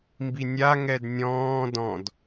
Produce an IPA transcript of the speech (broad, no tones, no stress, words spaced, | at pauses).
mbinʲa ŋɛdnʲɔ̃ː dɔ̃d